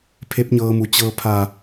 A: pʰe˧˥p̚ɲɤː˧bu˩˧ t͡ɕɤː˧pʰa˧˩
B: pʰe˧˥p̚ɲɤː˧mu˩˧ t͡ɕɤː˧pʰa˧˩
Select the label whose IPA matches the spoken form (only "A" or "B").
B